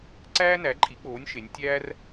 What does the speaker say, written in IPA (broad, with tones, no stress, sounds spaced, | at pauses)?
ǀ æː˥ n æ˩˥ ǃʼ i˩˥ k͡p oː˩˥ nʲ ʃ e˩˧ nʲ tʲ æː˥ r